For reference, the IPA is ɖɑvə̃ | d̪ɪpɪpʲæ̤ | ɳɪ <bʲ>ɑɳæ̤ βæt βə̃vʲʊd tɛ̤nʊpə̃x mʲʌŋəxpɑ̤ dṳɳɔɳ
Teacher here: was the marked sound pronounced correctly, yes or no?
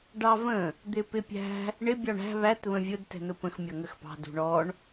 yes